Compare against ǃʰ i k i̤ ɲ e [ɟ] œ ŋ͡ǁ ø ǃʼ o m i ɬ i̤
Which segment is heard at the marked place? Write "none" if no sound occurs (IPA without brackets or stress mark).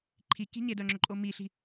d